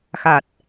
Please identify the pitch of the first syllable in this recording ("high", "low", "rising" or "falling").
low